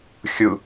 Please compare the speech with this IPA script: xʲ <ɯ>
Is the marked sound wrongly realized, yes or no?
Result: no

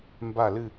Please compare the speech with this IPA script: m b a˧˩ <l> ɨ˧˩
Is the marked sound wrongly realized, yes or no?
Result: no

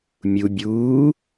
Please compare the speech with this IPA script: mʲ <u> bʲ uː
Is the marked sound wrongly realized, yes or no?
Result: no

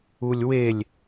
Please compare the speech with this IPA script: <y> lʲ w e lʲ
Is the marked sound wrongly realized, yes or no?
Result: yes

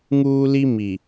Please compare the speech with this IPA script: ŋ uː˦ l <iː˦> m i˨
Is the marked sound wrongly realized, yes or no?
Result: yes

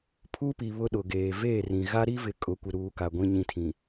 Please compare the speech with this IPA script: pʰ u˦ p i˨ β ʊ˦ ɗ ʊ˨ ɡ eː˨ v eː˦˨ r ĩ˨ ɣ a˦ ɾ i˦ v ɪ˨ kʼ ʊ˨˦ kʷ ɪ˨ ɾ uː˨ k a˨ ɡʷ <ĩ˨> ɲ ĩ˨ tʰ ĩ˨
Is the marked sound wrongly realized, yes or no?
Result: no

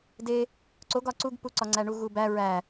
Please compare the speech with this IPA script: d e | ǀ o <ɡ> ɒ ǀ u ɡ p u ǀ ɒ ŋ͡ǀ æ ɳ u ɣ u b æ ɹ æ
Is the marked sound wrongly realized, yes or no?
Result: no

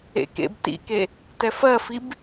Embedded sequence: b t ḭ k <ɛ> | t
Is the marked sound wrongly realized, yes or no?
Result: yes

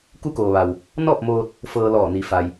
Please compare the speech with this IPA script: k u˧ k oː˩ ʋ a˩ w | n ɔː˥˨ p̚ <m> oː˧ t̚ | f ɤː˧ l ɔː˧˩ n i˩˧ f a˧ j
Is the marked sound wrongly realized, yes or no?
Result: no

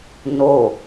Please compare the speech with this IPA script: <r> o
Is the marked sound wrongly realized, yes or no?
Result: yes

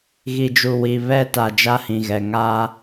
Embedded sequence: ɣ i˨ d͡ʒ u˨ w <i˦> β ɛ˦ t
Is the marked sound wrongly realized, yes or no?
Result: yes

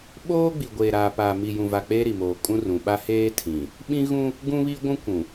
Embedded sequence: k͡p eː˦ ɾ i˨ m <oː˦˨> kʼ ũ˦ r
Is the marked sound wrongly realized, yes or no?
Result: yes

